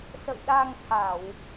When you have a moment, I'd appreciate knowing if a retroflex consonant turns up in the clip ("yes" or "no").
no